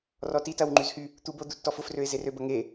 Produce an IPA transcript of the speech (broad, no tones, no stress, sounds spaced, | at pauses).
r ɔ t i t ɐ w ŋ͡ǃ y z h y | t̪ u b o d̪ u tː ɔ f ʊ f r ø ɪ̯ z e r ø b ɐ ŋ e